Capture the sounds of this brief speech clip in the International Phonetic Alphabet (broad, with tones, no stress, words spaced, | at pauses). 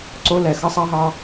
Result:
ǀo˦lɛ˨ xʌ˦sˤɑ˦ɦɑ˦